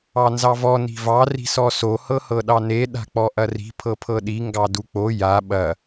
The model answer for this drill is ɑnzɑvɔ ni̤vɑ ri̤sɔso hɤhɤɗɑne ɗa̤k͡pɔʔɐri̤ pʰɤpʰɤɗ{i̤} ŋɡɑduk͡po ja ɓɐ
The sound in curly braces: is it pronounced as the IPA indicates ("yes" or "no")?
no